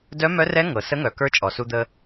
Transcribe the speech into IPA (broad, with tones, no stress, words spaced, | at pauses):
dœ˧˥mœ˧˥rɛ˧˥ ŋɤ˩sə˧˥ŋœ˩kə˞˧˥ t͡ʃʼɔ˩su˧d̪ə˧